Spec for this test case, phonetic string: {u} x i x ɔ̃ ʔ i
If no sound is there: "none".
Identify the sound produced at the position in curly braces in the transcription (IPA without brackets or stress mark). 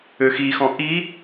ø